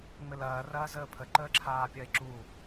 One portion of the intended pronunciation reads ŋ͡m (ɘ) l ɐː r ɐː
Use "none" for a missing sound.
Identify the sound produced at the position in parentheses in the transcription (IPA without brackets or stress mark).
ɘ